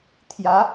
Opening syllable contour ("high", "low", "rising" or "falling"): rising